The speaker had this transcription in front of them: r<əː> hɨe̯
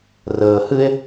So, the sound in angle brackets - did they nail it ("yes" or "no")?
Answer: yes